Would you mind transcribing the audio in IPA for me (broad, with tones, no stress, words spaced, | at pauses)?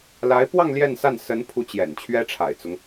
la˧˥ɪ̯pwɑ˥˧ŋ ljɛ˥˧nsa˥˩n sə˧˥npʰu˧˥ t͡ɕjɛ̰˨˩nt͡ɕʰɥɛ˥ʈ͡ʂʰa̰˨˩ɪ̯t͡sʊ˦ŋ